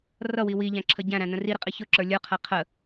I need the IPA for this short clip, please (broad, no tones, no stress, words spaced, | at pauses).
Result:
rʌwi wiʎæ̃ǁʰə ɟæ̃ɾæ̃nə̃ riɾɪqʼi çʊǁə˞ lʲə˞qʰæ qʰə